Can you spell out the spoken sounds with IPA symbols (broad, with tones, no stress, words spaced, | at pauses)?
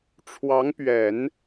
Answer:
ʈ͡ʂʰwɑ˧˥ŋpɥɛ˨˩˦n